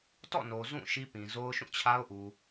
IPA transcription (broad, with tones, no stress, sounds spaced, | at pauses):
t ɔ̰˦˨ n o˨ z ũ˦˨ ʃ i˦ p ĩ˨ z o˦ ʊ̯ ʃ ũ˦˨ t͡ɕʰ a˦ ʊ̯ ʔ u˨